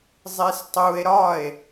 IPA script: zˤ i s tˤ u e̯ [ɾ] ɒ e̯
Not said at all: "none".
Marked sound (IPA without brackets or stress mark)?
ɾ